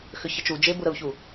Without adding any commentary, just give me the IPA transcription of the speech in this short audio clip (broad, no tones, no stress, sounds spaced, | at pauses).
x ʏ ç ə t͡ʃ u d͡ʒ e b u ɾ ə u̯ ç u